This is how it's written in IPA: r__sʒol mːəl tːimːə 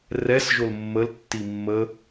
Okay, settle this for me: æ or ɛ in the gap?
ɛ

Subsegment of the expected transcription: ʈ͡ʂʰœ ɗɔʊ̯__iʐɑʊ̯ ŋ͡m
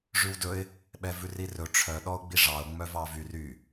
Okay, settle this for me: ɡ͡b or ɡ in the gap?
ɡ͡b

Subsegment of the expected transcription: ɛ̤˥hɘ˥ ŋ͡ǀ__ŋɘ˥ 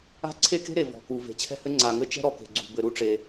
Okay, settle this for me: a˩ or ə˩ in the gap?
a˩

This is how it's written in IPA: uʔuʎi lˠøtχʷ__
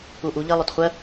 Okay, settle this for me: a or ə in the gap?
ə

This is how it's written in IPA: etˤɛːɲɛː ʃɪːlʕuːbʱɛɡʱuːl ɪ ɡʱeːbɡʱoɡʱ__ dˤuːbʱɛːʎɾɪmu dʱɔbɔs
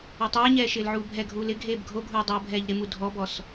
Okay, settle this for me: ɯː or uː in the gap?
uː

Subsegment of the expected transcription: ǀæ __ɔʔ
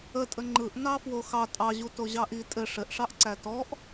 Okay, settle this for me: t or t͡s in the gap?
t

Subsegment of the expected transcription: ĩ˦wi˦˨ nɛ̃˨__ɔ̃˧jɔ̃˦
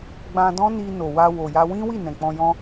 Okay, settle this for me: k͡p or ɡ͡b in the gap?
k͡p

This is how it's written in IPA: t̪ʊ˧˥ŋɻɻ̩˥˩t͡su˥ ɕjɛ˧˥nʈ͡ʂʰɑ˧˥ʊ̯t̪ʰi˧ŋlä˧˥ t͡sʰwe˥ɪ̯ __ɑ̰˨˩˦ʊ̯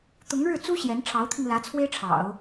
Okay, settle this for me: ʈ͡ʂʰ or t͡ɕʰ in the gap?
ʈ͡ʂʰ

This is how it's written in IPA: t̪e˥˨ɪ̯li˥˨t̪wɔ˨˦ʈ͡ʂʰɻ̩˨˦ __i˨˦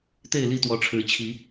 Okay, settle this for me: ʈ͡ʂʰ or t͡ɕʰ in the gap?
t͡ɕʰ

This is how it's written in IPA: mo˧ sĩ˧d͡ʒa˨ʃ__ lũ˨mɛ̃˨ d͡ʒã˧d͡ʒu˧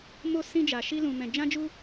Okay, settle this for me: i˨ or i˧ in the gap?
i˧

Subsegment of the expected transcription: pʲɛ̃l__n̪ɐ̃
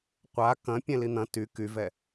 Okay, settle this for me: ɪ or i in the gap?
i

